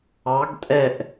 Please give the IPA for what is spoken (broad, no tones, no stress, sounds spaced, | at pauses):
ɑ ɡ tʼ ɛ ʔ